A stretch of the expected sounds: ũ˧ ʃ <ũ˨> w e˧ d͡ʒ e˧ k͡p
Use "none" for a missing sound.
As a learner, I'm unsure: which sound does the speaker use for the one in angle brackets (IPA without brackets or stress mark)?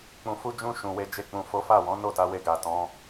ũ˨